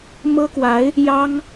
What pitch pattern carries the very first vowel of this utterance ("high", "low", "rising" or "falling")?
high